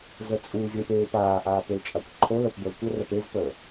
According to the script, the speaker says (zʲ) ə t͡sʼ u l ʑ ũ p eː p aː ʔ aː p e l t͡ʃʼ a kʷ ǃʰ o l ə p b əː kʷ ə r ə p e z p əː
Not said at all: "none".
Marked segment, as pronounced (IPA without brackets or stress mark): z